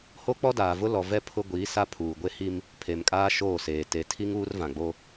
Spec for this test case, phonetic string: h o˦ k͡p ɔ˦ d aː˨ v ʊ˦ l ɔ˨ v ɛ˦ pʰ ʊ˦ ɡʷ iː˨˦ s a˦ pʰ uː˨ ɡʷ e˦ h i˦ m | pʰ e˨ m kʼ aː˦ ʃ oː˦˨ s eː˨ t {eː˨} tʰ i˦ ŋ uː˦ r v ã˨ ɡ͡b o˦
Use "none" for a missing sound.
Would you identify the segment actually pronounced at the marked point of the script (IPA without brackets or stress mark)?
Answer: e˨